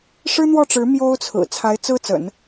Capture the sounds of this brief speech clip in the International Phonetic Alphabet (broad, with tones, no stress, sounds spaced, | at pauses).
ʂ ɻ̩˥ n̪ w ɔ˥˩ ʈ͡ʂ ɻ̩˧˥ m j o˥ ʊ̯ t͡sʰ ɹ̩˨˩ t͡sʰ a˧˥ ɪ̯ t͡s ɹ̩˥ t͡s ə̰˨˩˦ n